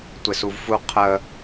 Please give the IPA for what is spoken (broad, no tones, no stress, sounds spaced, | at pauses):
tʷ ɪ s u v f u qʰ ə